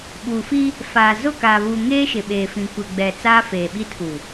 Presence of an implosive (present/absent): present